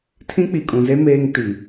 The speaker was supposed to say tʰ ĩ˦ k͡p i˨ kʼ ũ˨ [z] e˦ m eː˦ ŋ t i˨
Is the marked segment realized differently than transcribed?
no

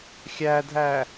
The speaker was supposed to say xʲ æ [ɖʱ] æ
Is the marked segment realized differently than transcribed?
yes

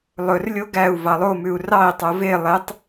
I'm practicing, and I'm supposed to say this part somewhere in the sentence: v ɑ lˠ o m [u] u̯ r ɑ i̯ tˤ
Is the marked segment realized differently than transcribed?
yes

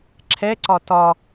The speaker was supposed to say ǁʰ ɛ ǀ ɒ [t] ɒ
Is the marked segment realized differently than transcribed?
no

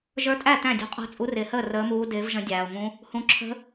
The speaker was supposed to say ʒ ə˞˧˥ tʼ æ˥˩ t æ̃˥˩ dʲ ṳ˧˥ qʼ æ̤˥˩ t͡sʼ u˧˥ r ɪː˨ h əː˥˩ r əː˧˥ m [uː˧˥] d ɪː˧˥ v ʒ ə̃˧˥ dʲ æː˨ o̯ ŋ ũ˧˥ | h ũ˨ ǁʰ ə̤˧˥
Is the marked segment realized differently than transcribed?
no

